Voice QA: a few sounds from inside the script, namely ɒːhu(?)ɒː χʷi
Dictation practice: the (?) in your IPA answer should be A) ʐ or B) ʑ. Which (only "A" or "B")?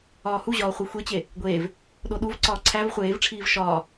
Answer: B